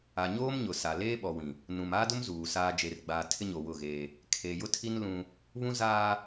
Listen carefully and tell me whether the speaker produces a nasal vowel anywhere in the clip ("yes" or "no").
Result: yes